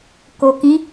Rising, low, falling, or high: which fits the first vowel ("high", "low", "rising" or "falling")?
low